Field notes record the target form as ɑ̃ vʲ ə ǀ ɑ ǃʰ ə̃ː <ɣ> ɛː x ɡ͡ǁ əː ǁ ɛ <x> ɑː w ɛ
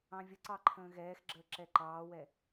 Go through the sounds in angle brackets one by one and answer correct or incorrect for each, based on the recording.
correct, incorrect

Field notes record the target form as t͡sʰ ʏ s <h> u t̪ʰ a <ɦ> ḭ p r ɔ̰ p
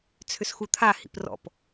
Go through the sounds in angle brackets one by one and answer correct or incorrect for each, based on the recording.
incorrect, incorrect

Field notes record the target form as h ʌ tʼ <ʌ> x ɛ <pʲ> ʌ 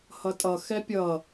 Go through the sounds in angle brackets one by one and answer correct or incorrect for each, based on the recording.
correct, correct

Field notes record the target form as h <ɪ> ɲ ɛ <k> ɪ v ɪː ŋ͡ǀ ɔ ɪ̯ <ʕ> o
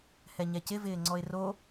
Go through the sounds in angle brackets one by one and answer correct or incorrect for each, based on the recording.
incorrect, incorrect, incorrect

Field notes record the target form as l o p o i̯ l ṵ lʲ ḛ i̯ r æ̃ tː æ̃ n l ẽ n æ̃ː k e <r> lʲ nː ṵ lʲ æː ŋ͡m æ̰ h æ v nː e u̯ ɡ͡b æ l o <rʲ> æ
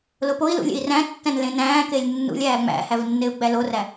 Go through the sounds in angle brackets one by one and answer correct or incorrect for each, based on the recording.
incorrect, incorrect

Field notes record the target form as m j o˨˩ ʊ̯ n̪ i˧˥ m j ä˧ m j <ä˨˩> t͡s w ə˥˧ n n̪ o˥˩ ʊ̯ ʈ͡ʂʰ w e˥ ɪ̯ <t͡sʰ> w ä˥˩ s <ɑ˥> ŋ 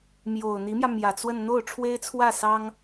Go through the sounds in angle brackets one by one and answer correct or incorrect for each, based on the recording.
correct, correct, correct

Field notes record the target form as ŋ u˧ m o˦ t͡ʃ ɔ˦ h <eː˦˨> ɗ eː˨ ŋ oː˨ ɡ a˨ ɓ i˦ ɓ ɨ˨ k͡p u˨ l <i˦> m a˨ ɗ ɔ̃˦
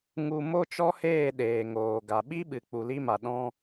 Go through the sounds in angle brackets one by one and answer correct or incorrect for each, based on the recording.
correct, correct

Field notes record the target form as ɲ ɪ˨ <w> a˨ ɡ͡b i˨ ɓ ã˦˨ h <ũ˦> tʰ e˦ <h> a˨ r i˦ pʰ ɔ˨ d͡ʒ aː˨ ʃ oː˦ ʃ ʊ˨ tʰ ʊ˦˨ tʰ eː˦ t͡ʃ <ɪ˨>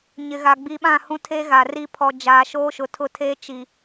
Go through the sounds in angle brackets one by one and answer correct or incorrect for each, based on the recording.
incorrect, correct, incorrect, incorrect

